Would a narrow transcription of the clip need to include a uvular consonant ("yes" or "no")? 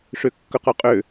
yes